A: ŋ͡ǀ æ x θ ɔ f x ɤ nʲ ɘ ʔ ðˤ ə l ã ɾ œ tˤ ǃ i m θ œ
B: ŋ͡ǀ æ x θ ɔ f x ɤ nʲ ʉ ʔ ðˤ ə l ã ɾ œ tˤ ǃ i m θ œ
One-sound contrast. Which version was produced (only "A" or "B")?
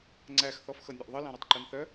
B